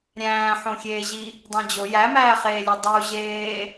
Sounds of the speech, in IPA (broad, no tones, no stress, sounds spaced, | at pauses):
ɾʲ æ̃ː ħ õ xʲ eː ʑ i | dˤ ẽ d͡ʑ o j æ m æː χ eː lʲ u dˤ u ʑ eː